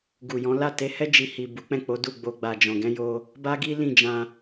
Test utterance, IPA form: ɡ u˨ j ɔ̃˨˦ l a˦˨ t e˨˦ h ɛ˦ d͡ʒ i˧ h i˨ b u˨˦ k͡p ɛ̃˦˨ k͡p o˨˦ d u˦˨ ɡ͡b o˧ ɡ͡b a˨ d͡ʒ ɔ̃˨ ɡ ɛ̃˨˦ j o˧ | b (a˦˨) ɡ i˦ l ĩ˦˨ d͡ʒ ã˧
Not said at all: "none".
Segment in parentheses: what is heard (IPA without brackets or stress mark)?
a˦